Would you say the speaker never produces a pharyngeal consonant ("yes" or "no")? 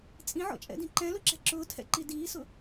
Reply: no